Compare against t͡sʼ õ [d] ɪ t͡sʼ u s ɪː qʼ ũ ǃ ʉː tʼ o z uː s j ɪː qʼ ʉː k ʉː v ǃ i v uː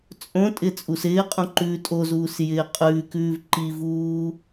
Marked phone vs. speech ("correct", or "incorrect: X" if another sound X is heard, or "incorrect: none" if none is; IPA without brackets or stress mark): incorrect: tʼ